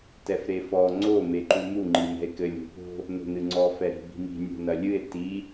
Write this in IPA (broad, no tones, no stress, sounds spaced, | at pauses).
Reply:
t ɛ f ɾ e f ɔ ŋ͡ǀ o m e ǃ u m u ŋ͡ǃ i m ɛ̤ e̯ k ɘ lʲ o̤ p o̤ | n o̤ n ɨ ŋ͡ǀ ɔ f ɛ ɾ i̤ b i̤ m i̤ nʲ o̤ n ɐ lʲ ɨ e̯ t i